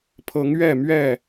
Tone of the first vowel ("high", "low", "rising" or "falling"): rising